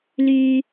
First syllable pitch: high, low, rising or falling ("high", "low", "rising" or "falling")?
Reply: low